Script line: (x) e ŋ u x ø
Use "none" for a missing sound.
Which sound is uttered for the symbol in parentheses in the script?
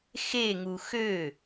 x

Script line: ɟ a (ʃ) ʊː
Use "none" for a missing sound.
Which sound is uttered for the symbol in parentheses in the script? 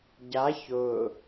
ç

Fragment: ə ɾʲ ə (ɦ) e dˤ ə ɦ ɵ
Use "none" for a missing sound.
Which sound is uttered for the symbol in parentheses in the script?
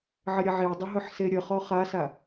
ʕ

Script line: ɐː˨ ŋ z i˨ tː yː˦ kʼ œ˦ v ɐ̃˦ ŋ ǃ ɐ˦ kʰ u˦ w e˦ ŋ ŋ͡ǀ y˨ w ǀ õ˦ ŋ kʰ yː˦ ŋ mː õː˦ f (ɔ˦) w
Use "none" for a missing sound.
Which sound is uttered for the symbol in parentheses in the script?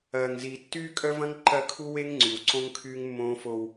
o˦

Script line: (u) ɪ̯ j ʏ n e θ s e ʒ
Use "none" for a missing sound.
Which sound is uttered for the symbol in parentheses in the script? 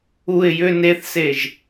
u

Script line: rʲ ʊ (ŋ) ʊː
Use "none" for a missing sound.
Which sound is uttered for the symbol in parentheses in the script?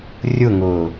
ŋ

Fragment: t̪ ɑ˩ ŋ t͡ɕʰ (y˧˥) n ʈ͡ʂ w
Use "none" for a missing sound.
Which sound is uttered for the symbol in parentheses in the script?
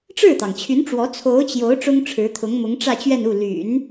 y˧˥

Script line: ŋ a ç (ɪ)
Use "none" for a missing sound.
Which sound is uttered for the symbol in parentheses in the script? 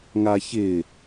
ɪ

